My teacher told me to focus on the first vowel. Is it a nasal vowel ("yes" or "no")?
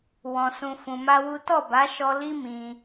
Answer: yes